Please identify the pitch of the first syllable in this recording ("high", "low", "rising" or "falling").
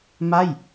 falling